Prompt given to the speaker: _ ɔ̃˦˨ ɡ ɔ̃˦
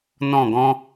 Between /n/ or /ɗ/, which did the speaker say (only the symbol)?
n